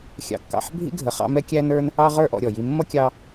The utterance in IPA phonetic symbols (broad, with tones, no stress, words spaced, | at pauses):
xʲɑ̰˨kːɑ̰˨ħbʱḭ˦ ɡʱə˨ χɑ̰˦mɛ˥ kʲæ˦nə˞˦n | ɑ˦ ʁə˞˦ʔɔ̰˨ɾʲɔ˩ji˨ mːʌ˥kʲɑ˦